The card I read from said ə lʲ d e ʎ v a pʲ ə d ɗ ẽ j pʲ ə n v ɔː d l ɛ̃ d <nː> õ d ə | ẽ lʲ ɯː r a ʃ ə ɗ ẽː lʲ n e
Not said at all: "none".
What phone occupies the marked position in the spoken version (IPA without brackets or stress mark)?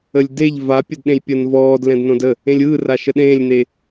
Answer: n